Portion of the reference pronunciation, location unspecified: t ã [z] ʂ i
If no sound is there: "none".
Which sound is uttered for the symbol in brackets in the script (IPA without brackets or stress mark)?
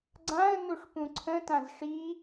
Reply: z